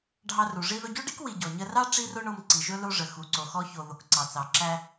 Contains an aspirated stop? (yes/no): no